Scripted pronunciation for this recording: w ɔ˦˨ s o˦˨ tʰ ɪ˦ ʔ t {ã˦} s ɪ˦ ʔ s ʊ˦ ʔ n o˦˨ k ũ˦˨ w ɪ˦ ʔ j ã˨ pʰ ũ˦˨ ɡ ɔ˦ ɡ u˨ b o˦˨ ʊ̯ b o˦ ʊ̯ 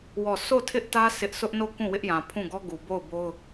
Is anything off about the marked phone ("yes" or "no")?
yes